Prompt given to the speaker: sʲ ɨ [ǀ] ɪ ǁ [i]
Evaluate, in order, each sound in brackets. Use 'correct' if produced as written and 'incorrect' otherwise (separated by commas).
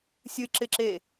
incorrect, incorrect